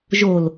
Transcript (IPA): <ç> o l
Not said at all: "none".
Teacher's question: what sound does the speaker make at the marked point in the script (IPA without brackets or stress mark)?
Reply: ʒ